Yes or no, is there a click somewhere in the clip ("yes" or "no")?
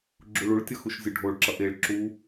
yes